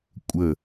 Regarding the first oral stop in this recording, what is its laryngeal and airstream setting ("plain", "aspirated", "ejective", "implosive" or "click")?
ejective